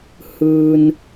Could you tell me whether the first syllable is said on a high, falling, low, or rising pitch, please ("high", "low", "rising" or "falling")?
low